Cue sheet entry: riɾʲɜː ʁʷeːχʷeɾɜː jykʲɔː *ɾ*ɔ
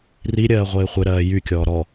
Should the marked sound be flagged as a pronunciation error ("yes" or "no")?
no